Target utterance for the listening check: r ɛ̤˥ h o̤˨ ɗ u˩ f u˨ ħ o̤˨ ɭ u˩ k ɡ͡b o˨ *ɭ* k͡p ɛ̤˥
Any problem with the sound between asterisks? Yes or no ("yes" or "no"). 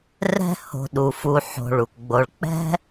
no